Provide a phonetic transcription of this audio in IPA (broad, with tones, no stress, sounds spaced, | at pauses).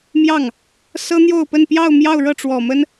m j ɑ˥˩ ŋ | s ɤ˥ n̪ j o˥˧ ʊ̯ p ə˥˧ n p j ɑ˥˧ ʊ̯ m j ɑ˥˧ ʊ̯ ɻ ɤ˥˩ ʈ͡ʂ w ɔ˨˩ m ə˥ n